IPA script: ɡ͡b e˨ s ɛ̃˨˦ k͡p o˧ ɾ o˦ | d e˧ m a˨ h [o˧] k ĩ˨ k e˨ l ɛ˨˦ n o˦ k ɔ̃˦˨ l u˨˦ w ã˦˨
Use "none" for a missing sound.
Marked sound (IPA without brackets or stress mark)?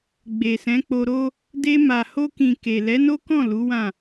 o˧